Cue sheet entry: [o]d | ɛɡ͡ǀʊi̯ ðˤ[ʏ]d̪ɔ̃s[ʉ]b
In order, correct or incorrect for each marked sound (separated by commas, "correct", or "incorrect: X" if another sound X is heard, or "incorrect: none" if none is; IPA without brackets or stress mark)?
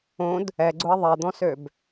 incorrect: õ, incorrect: ɛ, incorrect: ø